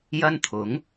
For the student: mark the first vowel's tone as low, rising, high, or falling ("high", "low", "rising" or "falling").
high